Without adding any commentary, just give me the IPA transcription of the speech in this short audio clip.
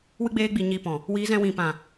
wɨ˦ɡ͡beː˦ɡ͡bi˧ ɲi˧pɔ̃˨ | wiː˨˦zɛ̃˧ wĩ˨pã˨

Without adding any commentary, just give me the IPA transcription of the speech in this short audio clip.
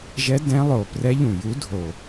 ʒɛ˧˥ dɛ̃˧˥lˠo˨˩ prɛ˧˥ʎũ˨˩ju˧˥ dʱo˨˩

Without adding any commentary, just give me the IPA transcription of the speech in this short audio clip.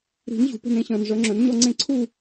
ɾi̤˨˩˦n ʑṳ˩˥pe̤˦nẽ˩˥ɕœ̃ː˨n ʐœ˩˥ŋ͡ǁœ̃˩˥nɲɔ˦ŋ͡ǀẽ˥˨ ǀʰu˥˨

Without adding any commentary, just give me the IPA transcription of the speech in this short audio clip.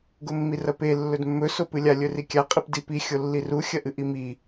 ɡomːirɐpe lːɵdmːɵ sopɨlʲa lʲɵrikʲa qʼipdipi xʲolːiru xʲɐʔɨʔimi

